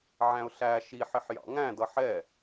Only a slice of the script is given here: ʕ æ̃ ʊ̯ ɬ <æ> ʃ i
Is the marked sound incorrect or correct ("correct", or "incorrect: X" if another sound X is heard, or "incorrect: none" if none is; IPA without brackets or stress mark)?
correct